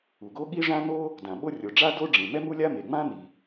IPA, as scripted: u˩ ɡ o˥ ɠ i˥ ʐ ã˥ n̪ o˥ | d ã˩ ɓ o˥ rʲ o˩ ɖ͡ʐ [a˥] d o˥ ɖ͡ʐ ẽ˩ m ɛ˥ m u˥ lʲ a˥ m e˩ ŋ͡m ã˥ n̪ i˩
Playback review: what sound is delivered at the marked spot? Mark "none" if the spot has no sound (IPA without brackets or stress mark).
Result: a˥